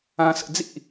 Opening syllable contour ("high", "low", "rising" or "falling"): low